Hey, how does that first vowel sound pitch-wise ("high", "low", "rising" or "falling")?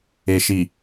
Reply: low